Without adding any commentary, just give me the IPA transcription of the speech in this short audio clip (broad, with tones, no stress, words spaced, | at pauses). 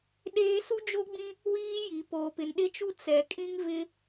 ɗeː˦ su˦d͡ʒo˦ɡ͡bĩ˦ | wiː˦ji˨ poː˨pɪ˨nɗɪ˦t͡ʃu˦ t͡sɛ˨kʼĩ˦ŋ vɪ˦